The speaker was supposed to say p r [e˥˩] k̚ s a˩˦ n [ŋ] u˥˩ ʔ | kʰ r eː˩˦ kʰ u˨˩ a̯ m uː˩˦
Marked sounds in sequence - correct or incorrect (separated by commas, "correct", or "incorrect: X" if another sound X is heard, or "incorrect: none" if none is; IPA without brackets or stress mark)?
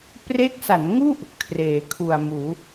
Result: incorrect: e˦˥, correct